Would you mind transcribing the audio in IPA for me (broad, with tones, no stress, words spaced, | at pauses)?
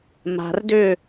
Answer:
ma̤˨rdʏ˦˨